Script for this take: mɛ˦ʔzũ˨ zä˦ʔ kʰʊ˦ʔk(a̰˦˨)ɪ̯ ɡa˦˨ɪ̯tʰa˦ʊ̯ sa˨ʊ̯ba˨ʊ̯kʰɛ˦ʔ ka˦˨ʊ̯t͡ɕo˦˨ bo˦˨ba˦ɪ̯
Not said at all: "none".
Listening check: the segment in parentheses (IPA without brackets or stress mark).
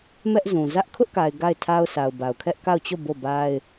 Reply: a˨